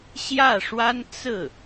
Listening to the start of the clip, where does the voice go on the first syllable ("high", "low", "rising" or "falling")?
falling